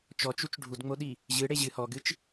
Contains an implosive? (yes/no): yes